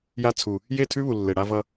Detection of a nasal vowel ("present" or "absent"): absent